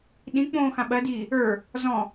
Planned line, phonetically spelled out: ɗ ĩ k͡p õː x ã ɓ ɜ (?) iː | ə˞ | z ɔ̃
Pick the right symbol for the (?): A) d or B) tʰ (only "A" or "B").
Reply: A